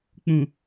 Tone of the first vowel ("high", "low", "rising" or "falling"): low